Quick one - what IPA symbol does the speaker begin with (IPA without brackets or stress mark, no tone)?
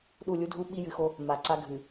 ɗ